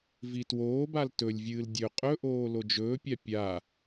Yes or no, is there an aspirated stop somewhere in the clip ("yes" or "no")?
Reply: no